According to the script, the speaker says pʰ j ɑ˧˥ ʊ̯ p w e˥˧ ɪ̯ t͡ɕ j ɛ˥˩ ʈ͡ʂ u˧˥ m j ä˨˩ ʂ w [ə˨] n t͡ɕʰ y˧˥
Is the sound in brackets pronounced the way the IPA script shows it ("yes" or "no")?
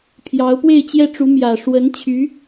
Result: no